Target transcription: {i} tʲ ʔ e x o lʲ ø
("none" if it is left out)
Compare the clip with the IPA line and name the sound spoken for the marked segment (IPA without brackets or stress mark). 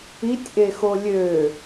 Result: i